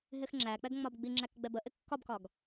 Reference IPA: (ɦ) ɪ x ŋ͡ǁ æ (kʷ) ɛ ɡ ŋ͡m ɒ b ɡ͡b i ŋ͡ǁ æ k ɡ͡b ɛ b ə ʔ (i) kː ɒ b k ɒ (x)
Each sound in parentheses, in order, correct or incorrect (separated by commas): correct, incorrect, incorrect, incorrect